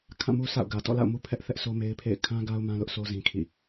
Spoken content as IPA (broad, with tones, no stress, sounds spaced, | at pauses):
kʰ ã˦˨ m u˦ s a̰˦˨ ʊ̯ ɡ ä˨ t ɔ̰˦˨ l a̰˦˨ ʊ̯ m u˦ pʰ ɛ˦ ʔ θ ɛ˦ ʔ s o˦ m e˦ ɪ̯ pʰ ḛ˦˨ ɪ̯ kʰ ã˦ ɡ a˦ ʊ̯ m ã˦ l ʊ˦ ʔ s o˦ z ĩ˦ kʰ ḭ˦˨